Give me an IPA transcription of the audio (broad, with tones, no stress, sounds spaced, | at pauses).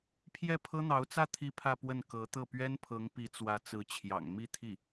pʰ j ɛ˥˩ pʰ ɤ˥ n̪ ɑ˧˥ ʊ̯ t͡s ä˥˧ t̪ʰ i˥˧ pʰ ä˥˧ p w ə˥˩ n k ɤ˧˥ t̪ ɤ˥˩ p ɥ ɛ˥ n pʰ ɤ˧˥ ŋ p i˧˥ t͡s w ä˧˥ t͡s ɹ̩˧˥ t͡ɕʰ j ɑ̰˨˩ ŋ m i˥˧ t̪ʰ i˥˩